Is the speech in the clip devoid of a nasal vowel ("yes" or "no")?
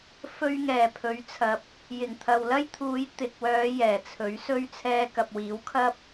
yes